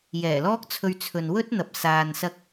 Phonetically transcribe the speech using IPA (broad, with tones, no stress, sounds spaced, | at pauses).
j ɛː˨˩ l ɔː˥ k̚ t͡sʰ ɵ˧ ɥ t͡sʰ ɵ˨ n w ɵ˥ t̚ n̪ ɐ˨ p̚ s aː˨ n s ɐ˧ k̚